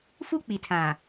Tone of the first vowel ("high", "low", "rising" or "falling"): high